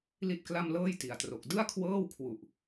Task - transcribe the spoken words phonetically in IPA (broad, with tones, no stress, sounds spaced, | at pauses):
l i˥˩ t̚ k l a˥˩ m l ɤː˥˩ j t i˨˩ a̯ t r o˨˩ k̚ d ɯ˥˩ a̯ kʰ w ɤː˥˩ w kʰ w u˨˩ ʔ